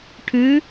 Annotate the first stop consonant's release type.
aspirated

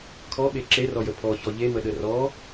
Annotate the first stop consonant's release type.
aspirated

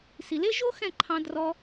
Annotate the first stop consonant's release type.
click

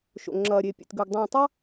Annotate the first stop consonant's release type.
click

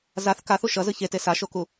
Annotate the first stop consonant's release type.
plain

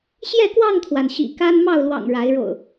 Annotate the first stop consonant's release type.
plain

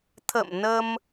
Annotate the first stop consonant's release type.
aspirated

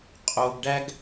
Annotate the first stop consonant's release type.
ejective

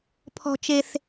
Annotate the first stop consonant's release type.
aspirated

